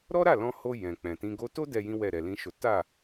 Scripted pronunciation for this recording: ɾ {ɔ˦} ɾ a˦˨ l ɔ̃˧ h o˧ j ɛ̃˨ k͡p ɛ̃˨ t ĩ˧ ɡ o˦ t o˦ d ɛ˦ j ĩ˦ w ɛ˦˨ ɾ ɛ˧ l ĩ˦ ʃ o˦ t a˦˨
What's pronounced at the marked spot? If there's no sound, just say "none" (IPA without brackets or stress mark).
ɔ˦